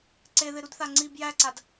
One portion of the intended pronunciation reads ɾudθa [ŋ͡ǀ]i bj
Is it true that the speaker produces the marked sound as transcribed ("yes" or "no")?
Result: yes